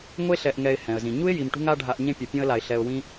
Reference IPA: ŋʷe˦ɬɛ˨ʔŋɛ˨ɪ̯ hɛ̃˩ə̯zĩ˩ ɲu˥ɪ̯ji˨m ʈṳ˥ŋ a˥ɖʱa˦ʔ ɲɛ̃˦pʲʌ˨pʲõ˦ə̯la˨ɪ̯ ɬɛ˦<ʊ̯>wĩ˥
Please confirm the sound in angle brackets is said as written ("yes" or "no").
yes